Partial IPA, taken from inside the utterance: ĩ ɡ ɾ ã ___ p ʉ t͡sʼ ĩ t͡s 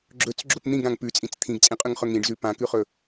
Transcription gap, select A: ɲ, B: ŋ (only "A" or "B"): B